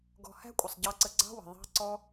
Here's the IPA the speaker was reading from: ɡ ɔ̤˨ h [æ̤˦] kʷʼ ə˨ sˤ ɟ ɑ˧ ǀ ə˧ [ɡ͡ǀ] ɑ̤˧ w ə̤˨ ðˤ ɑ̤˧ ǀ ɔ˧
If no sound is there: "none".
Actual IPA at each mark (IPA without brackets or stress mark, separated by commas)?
æ̤˦, ɡ͡ǀ